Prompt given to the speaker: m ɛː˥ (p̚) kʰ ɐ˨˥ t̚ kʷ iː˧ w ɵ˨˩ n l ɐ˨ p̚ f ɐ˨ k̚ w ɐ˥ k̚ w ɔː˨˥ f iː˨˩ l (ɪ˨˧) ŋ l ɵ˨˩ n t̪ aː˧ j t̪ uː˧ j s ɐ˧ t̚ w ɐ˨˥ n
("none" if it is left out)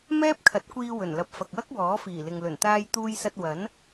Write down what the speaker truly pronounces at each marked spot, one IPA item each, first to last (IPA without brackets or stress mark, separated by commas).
p̚, ɪ˨